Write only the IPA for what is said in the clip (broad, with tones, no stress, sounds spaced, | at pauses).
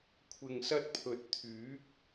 kʷʰ ɪ˨ ŋ s ɐ˧ t̚ pʰ ɵ˨˥ t̚ t̪ʰ yː˨˥ k̚